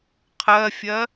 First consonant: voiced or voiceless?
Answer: voiceless